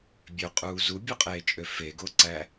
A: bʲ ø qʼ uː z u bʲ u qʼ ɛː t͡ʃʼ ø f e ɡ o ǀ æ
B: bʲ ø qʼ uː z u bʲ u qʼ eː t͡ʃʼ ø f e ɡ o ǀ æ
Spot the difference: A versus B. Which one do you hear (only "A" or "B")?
B